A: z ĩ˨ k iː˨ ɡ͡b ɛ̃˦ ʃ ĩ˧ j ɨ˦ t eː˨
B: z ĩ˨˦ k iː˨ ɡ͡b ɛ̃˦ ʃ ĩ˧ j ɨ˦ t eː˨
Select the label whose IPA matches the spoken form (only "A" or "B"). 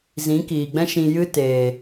B